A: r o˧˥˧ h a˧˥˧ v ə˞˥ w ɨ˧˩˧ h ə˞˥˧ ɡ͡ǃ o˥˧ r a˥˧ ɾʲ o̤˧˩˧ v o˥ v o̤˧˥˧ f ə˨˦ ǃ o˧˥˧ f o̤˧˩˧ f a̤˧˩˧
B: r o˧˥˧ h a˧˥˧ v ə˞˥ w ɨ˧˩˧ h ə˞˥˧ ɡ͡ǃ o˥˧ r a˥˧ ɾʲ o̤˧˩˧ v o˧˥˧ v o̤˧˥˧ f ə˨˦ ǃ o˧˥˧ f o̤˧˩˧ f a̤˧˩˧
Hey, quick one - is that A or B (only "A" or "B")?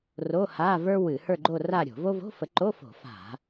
A